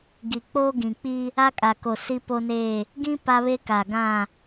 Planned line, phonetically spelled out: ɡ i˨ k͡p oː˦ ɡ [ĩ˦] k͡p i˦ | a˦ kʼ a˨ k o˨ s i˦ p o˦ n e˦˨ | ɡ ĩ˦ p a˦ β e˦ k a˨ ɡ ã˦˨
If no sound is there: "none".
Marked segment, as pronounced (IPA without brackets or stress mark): ĩ˨